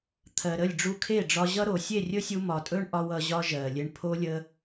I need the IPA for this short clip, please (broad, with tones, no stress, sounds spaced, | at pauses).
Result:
t̪ʰ ɜ˨ ɾ ə˦˨ lʲ ɖ͡ʐ u˧ kʰ e˦˨ ɖ͡ʐ ɒ˧ ʑ ʌ˦ ɾ o˨ sʲ e˦˨ rʲ ɵ˦ sʲ u˧ m ɒ˨ tʼ ɵ˦ ɳ ʔ ɒ˧ w ʌ˧ ʑ ɒ˦ ʒ ɜ˨ lʲ e˧ ɳ pʰ o˦ lʲ ə˦